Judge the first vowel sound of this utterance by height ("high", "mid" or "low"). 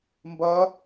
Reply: low